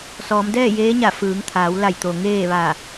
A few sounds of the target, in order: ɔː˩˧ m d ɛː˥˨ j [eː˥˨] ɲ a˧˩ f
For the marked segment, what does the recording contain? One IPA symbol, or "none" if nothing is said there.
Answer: eː˧˥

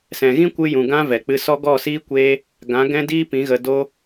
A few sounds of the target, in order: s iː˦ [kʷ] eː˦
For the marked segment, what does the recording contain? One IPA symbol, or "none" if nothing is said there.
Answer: kʷ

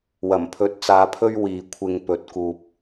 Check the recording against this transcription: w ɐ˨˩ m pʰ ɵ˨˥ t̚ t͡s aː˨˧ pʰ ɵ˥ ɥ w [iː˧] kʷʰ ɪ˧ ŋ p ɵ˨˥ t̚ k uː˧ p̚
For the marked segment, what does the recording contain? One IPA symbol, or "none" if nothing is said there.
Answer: iː˨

